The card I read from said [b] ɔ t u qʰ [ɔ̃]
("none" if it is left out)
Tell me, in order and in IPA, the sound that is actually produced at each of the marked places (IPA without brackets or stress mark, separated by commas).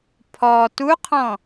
pʰ, ɔ̃